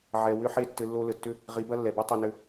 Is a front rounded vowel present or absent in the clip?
present